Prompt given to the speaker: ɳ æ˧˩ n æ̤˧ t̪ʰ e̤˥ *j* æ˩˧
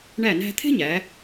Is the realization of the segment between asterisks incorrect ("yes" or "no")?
yes